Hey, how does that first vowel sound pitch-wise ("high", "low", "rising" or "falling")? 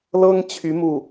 high